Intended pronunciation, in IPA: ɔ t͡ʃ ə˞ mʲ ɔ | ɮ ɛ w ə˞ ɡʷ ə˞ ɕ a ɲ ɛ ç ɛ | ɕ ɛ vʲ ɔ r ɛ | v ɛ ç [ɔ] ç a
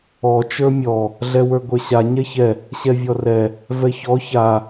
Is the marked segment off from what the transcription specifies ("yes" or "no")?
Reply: no